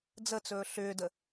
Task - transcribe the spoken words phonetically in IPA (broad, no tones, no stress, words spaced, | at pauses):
d͡zət͡sɵː ɬʏːdə